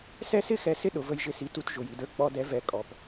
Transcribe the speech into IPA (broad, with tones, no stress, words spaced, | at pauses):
sɛ˦sɪ˦xɛ˨˦ sɪ˦ ɗʊ˨və˧j ʒɪ˧si˨˦tu˧t ʒʊ˨ji˨də˞˧ k͡pɔ˧dɛ˨˦ vɛ˨ kʼɔ˨p